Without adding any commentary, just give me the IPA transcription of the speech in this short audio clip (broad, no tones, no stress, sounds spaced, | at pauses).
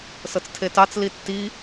s ɤ t͡s tʰ e t ɑ t͡s l i tː i